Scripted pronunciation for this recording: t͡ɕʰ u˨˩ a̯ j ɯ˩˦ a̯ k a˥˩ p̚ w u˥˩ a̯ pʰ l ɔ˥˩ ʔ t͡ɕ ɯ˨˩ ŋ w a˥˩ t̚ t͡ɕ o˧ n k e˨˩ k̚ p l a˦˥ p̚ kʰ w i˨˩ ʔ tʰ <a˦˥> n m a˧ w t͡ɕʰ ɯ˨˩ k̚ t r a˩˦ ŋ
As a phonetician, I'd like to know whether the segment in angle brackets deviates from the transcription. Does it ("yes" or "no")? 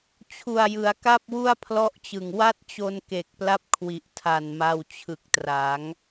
yes